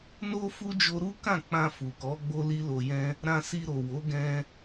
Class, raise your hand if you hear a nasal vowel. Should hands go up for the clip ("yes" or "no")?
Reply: yes